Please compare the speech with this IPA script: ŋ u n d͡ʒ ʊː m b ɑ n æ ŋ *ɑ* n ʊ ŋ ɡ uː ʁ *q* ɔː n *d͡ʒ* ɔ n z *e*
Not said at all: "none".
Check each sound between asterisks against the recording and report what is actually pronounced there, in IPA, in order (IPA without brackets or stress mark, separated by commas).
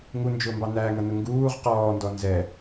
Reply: ʌ, q, d, ɛ